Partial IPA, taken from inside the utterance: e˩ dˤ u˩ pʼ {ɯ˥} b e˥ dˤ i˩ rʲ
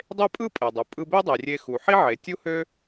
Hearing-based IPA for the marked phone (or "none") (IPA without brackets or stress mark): ɯ˧